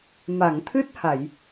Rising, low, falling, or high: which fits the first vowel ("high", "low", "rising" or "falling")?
low